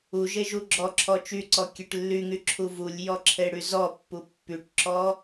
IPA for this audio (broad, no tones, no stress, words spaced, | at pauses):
uʒe ʒuɡ͡ǁɔǁʰɔ t͡ʃyǀɔ kʲeʈlːyŋy ǁʰuvulʲjɔ ǁʰeɽyzɔpːu pːyʈǁɔ